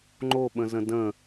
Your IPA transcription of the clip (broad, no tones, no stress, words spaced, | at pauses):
ŋ͡ǃoɓə̃zə̃ də̃